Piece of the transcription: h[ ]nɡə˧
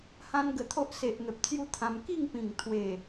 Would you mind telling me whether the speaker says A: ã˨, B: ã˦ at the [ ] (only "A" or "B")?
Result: B